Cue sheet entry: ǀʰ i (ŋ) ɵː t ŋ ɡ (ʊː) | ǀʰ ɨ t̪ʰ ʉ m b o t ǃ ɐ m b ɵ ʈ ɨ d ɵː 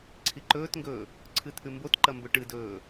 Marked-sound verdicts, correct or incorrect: incorrect, incorrect

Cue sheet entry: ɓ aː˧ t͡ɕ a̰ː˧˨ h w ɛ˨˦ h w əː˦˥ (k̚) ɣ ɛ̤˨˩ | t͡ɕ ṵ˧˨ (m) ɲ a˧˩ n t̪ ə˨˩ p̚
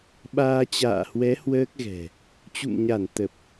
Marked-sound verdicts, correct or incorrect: correct, correct

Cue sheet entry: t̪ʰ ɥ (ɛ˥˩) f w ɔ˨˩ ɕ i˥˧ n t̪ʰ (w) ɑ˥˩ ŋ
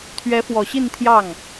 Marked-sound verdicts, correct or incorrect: incorrect, incorrect

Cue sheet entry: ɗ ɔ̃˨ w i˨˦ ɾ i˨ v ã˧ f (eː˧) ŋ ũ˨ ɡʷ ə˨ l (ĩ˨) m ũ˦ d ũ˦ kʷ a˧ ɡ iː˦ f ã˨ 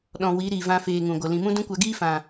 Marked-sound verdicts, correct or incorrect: correct, correct

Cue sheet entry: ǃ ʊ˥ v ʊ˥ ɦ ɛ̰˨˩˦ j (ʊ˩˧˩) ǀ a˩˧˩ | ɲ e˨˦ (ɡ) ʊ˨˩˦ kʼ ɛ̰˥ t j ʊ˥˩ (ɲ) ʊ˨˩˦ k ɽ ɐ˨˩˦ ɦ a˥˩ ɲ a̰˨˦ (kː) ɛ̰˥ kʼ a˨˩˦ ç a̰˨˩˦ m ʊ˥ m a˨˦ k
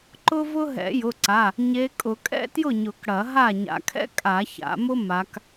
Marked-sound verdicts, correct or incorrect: correct, incorrect, correct, incorrect

